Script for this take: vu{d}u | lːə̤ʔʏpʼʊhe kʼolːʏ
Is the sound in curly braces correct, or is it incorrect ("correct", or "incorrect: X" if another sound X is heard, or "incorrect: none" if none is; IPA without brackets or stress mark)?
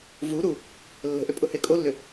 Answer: incorrect: ɾ